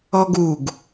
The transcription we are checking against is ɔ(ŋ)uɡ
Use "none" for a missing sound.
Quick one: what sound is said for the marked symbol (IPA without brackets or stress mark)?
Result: ɡ